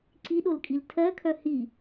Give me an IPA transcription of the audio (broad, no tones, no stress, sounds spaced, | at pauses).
ǀ i ɗ o l kʼ i l tʰ ɜ kʰ œ h i